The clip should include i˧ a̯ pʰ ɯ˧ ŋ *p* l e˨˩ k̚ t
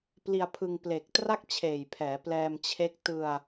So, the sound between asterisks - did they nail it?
yes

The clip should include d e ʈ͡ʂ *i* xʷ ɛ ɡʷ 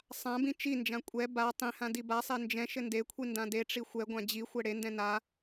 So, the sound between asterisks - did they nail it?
yes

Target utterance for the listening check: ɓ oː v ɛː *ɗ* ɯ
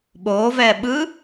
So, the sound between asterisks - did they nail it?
no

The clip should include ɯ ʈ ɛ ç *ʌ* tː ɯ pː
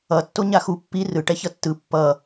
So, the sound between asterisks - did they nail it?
yes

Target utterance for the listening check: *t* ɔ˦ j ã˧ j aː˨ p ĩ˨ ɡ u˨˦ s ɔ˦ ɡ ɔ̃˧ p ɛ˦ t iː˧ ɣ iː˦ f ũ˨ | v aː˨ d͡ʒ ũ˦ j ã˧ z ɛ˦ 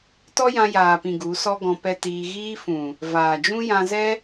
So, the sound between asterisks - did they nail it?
yes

